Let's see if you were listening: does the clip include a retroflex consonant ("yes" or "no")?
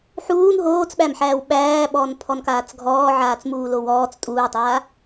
no